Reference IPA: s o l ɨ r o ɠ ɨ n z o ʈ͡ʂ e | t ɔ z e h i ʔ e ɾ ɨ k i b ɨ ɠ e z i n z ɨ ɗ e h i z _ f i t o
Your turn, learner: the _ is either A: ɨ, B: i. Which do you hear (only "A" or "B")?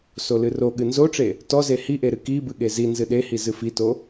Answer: A